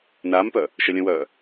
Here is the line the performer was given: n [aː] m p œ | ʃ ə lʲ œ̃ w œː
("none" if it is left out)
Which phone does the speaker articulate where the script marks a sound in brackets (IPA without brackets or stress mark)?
aː